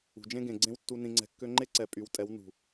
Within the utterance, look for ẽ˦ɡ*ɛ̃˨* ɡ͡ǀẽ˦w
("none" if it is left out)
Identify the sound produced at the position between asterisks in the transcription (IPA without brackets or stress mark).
ẽ˨